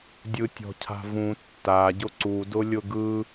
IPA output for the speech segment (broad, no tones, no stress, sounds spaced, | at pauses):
dʲ ɯ tʲ ɔ̤ cʰ a̤ v ũ tː a ɟ ʊ ǀ u d ʊ lʲ ʊ ɡ ɯ